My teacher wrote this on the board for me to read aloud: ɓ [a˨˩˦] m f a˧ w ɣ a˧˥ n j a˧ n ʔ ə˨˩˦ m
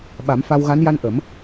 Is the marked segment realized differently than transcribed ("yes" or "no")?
no